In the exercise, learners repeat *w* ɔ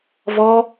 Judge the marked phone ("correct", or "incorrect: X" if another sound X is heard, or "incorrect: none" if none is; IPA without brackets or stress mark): incorrect: v